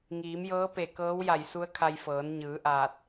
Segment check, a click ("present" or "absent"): absent